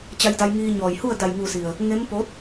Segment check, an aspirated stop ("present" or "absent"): absent